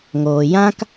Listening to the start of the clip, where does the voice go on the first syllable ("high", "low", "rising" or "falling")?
low